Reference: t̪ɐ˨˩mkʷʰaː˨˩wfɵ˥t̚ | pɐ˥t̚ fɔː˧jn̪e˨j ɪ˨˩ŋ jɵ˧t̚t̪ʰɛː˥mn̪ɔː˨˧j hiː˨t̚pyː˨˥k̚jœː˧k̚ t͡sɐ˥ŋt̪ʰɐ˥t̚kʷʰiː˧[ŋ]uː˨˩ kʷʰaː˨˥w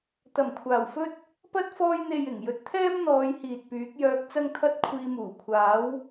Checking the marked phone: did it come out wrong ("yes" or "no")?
yes